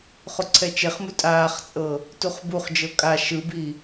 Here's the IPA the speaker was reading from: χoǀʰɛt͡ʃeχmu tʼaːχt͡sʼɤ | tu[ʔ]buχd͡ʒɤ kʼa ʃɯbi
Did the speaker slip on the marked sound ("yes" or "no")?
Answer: yes